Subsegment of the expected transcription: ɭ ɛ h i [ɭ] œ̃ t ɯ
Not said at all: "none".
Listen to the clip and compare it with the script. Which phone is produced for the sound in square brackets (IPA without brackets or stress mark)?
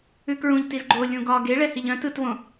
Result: ʎ